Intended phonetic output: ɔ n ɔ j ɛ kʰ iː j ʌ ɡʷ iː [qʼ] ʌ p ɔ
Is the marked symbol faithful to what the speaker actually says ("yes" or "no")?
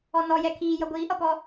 no